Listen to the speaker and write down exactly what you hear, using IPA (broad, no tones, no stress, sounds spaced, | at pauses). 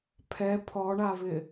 pʰ ɛ pʰ ɔ ɳ a v ɪ